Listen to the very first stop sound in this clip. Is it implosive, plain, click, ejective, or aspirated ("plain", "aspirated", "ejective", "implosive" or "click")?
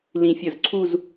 click